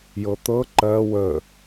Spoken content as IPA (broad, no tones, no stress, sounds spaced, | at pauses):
j ɤ t̪ ɤ ǃ ɜ w ə